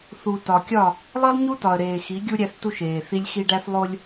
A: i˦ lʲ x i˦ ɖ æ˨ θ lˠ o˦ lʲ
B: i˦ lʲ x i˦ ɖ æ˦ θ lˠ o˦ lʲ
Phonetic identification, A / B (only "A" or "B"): B